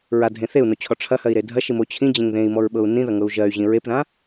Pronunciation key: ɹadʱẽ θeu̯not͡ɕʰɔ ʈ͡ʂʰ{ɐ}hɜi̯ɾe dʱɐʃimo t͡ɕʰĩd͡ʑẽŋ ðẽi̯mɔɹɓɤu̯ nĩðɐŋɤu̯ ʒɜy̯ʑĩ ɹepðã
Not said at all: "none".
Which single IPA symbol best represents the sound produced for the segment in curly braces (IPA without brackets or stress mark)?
ɐ